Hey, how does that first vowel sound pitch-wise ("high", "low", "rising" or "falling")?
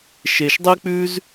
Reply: low